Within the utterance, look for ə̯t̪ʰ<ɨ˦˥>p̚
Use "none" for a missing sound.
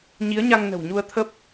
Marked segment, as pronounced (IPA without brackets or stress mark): ə˦˥